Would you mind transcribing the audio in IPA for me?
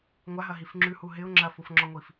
ŋʷ a ɦ ɐ ɦ i f ŋ͡ǁ ʉ h u ɦ ɪ ʊ̯ ŋ͡ǁ ɐ f u f ŋ͡ǁ ɔ ŋʷ i f

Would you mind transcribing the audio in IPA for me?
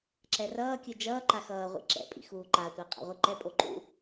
ǁ ɛ r ʌː kʲ ɯ d͡ʒ ʌː ǃ a x ʌː ʁʷ ḭ ǁ ɛ̰ pʼ ḭ x uː ǃ a tʷ a qʼ a̰ ʁʷ ɯ ǃ ɛ pʼ o ǃ ṵ

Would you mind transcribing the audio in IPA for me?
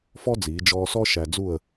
f ɔ˥ d͡z iː˩˧ d͡ʒ ɔː˧ s ɔ˥ ʃ æ˧ d͡z u˥˨ ə̯

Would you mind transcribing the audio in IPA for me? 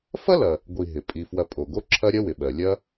f ɐ˥ l ɐ˩ | ɡʷ i˨ ɦ ɪ˩ pʼ i˩ f w ɐ˨ pʼ o˩ ɡ o˦ ǁʰ ɐ˦ ɾʲ ɐ˥ w ɪ˩ ɓ ɜ˩ lʲ ɐ˦

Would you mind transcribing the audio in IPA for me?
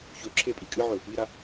ç ɵ ǁʰ e pʼ i kʼ ɨ ʕ ɵ | i ɾ a

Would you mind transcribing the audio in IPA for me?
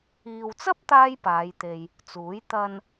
iː˨ w t͡s ɐ˥ p̚ t̪ aː˥ j p aː˨˧ j t̪ e˧ j | t͡s uː˨˥ j t̪ ɐ˧ n

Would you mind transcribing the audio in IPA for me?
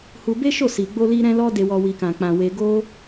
h u˧ b e˦ ʃ o˦˨ s i˧ ɡ͡b o˦ l i˦ ɾ ɛ̃˦ l ɔ˦ d e˧ w ɔ˧ w i˧ k ã˧ k͡p ã˧ w e˧ ɡ o˦

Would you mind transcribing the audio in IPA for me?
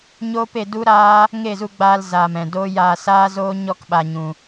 ɲ oː˦ p e˧ d u˦ ɾ aː˦ | ŋ e˦˨ z u˧ ɡ͡b aː˧ l z aː˨ m ɛ̃˨ d o˦ j aː˧ s aː˦ z oː˦ ɲ ɔ˦ k ɓ a˧ ɲ ũ˧

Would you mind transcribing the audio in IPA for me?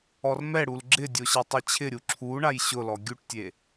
ɔ r m ɛ ɽ u l ɡ͡ǁ ɪ dʲ o ɕ e tˤ i t͡ɕʰ ɪ ɾʲ u ǁʰ u ɳ a j ɕ ʊ l ɔ ɡʲ u ʈ tʲ e

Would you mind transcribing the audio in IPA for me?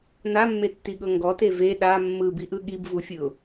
n a mː e tː i ɠ ɤ ŋ ɡ ɔ t e v e ɗ a mː ɯ b i ʔ ɯ ɠ i b v u fʲ ɯ ʊ̯

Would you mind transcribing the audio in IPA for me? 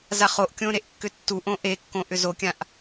z a χ o ʔ kʲ õ ɾ e ʔ kː ʏ tː u ʔ õ ʔ e kː õ ʔ ʏ z o kʲ ã ʔ

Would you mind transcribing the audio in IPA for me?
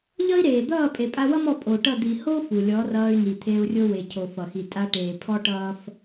ʎ ʌ˦ i̯ ɾ eː˨ d̪ ʌː˦˨ pʼ e˨ pʼ a˧ w ʌ˦ m ɔ˧ pʼ o˨ ʈ ʌ˦˨ d̪ i˨ h o˦ f u˨ lʲ ɔ˨˦ r ʌː˧ y̯ n i˨ t̪ʰ e˧ u̯ rʲ o˦ w e˨ cʰ o˨ f ʌ˨ x i˨ tʼ a˧ ʈ eː˨ pʰ ɔ˦ ʈ ʌː˦ f

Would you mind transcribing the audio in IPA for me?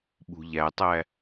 ɓ ṳ ʎ æ tˤ æ

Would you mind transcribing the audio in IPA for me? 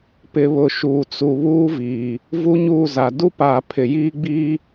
p ɪ˨ β ʊ˨ ʃ uː˨ t͡s u˨ β uː˦ v iː˨ | v u˦ ɲ uː˦˨ z a˨ d u˦ p aː˨ pʰ ɪ˨ j iː˦ ɡ͡b iː˦

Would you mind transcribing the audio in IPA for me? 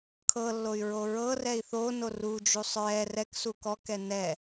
kʰ ɤ lː o y̯ ɹ o ɹ ɤ r ɛ i̯ θ o n o r u d͡ʒ u sˤ ɹ ɛ r ɛ k s u k ɔ k ɛ n ɛ

